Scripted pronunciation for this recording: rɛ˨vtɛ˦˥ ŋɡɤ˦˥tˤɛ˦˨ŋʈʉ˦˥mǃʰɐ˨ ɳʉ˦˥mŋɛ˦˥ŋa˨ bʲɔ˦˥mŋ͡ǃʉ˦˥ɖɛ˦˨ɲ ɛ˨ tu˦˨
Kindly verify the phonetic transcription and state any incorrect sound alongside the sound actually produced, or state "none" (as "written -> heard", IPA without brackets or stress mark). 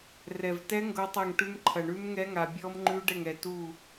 ɲ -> ŋ